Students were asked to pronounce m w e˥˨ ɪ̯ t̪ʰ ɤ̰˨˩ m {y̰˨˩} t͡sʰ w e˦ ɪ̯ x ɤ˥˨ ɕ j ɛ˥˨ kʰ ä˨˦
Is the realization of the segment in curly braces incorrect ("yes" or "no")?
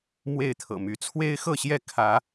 yes